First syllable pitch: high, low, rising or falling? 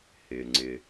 low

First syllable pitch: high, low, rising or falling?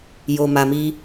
low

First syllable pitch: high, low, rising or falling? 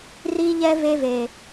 high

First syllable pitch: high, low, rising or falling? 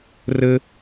high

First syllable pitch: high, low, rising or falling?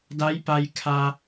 rising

